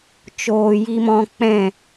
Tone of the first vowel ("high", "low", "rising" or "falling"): low